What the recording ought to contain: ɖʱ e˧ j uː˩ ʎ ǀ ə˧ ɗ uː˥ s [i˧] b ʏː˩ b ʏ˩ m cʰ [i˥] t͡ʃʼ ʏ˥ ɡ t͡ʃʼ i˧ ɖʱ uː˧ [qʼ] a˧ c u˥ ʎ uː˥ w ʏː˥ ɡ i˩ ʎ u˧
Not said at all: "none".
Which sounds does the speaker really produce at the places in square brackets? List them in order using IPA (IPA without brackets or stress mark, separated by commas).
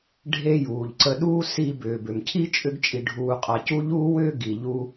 i˧, i˥, qʼ